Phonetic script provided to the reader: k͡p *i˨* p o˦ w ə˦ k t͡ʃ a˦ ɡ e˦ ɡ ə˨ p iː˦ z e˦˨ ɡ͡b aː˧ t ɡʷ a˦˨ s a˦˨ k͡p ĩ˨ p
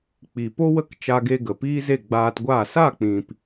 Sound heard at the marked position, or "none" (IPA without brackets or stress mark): i˨